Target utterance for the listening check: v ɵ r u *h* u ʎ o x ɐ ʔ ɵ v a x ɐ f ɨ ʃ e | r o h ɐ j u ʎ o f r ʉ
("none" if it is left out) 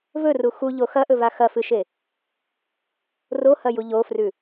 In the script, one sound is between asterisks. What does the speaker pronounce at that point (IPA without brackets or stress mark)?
x